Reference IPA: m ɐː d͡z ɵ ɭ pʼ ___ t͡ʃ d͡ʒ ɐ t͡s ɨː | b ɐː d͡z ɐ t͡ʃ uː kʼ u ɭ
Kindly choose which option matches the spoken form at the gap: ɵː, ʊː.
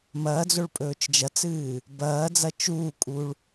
ɵː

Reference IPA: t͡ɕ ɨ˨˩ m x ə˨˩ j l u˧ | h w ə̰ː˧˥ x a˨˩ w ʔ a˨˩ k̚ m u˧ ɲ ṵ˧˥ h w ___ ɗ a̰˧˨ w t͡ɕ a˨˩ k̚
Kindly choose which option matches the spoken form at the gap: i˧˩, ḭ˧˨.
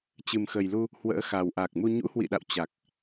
ḭ˧˨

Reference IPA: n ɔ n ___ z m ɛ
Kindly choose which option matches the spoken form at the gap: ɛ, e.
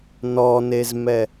e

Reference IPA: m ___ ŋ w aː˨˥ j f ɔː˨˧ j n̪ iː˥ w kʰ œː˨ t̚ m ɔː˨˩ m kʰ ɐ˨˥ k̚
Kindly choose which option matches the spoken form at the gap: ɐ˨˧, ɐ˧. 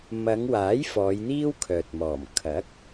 ɐ˨˧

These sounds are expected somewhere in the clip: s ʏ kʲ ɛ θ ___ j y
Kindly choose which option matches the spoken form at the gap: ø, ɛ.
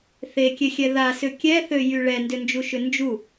ø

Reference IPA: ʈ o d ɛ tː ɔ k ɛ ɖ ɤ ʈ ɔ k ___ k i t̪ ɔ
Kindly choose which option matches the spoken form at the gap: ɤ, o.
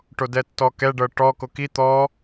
o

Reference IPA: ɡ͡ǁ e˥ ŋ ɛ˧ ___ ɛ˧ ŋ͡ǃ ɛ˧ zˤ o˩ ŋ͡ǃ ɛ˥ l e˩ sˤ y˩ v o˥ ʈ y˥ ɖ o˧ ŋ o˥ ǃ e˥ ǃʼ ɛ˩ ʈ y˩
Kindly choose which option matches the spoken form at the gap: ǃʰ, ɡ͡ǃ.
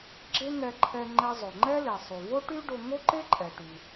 ǃʰ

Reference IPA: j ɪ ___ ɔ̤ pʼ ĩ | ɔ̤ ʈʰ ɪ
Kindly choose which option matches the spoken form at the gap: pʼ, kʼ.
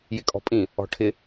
kʼ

